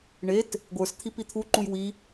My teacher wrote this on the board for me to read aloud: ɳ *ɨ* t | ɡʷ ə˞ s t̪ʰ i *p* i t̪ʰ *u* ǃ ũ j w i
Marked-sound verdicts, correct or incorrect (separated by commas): incorrect, correct, correct